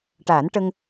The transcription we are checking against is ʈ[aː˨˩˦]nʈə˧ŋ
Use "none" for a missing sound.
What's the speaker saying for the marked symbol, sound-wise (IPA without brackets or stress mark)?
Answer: aː˨˩˦